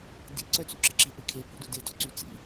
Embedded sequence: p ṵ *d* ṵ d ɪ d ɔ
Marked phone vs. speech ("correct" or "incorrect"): correct